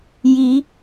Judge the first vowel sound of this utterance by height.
high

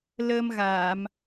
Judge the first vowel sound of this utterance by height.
mid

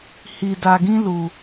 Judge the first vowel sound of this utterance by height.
high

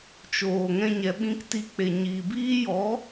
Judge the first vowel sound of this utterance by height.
mid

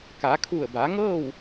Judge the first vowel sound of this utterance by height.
low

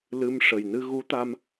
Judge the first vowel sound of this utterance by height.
high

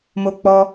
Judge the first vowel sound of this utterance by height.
mid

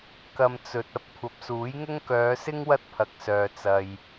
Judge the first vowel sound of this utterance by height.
low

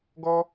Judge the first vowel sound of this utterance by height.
mid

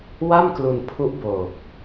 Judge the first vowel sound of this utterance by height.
low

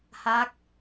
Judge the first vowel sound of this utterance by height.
low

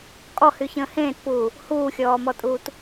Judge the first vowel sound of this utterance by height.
mid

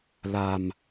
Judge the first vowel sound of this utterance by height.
low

